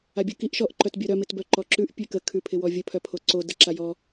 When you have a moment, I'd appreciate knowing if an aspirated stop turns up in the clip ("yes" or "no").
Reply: yes